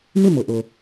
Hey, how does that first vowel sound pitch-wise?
falling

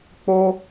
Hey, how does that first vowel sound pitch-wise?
high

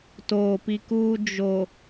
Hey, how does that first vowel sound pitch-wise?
low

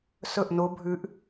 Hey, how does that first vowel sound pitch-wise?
falling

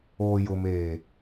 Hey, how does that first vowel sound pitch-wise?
low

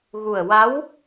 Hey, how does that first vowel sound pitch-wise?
low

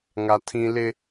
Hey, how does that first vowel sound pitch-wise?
high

